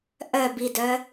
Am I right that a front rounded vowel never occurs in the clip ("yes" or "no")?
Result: no